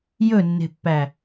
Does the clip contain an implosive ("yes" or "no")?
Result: no